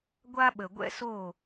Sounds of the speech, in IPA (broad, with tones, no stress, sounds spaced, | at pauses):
ɡʷ a˥ ɓ ə˩ ɡʷ ɛ̰˥ s o˥˩